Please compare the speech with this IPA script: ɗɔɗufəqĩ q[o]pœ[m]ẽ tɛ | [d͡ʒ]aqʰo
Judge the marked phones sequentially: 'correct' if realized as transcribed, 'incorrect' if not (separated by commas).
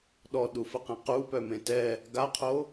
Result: incorrect, correct, incorrect